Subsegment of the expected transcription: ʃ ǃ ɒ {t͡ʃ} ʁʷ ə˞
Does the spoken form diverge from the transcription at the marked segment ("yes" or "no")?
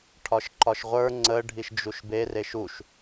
yes